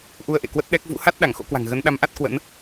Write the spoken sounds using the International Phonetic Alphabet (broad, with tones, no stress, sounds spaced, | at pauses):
ʔ u˧ ə̯ ʔ ḛ˧˨ k w ə˦˥ t̚ ɗ ɛ˦˥ k̚ v ṵ˧˥ h a˦˥ t̚ ɗ a˧˩ ŋ x o̰˧˥ k w a̤˨˩ ŋ ɣ ə˨˦ n ɗ a˨˦ m ʔ a˦˥ t̚ k w ə̰˧˥ n